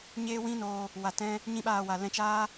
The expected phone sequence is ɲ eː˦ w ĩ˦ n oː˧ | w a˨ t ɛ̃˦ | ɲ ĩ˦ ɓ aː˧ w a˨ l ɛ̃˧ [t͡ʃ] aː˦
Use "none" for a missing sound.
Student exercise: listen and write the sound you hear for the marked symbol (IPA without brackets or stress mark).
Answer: t͡ʃ